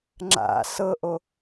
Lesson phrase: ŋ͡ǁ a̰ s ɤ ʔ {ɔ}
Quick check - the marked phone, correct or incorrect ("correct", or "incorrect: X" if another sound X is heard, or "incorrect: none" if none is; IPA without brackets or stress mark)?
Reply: incorrect: o